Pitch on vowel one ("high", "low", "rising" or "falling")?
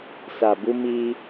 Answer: low